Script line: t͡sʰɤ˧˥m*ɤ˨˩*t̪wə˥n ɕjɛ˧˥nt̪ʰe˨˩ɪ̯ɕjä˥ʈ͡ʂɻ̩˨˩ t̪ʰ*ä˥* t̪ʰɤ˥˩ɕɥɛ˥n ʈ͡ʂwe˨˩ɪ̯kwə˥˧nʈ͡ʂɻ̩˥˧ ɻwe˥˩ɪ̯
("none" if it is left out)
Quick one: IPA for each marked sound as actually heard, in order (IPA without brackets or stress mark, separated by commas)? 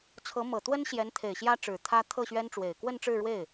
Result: ɤ˨˩, ä˥